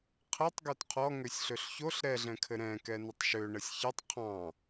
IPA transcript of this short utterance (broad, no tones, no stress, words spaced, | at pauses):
qʰɛtˤ ɡøtqʰɔ ŋøsʲɬøɬçoɬ ɾɛɮɛ̃kʰɘ ɾɛ̃ kɛnɘtˤʃø ɳəsʲçɘtˤ qʰɑ̃